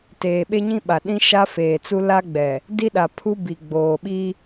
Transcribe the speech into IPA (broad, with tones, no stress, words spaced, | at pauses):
teː˨ɓe˦ɲĩ˦ɓa˨ ɗĩ˦ ʃa˦feː˨t͡su˦ la˦ɡ͡bɛ˨ | di˦ɗa˨pʰu˦ bi˨ɡ͡boː˨ɓi˦